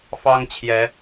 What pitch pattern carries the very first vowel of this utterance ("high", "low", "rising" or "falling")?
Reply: high